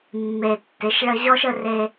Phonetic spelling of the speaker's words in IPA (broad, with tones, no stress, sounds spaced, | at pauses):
mː e˨ tː ɪ˨˦ ʃ ɭ ə˦ ʑ ɔ˦ ʃ ə˦ r e˦